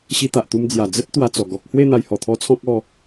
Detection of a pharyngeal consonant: absent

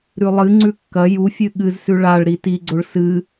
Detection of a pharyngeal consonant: absent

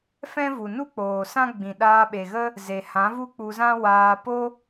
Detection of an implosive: present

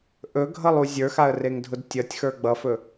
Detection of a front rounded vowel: absent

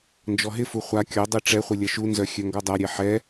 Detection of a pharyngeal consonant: present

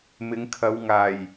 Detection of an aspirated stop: present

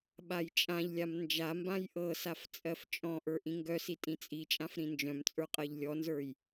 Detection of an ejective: present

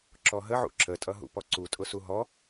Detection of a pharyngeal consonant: present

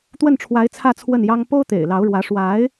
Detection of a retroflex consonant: present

